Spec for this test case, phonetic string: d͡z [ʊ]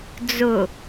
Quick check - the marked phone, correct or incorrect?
correct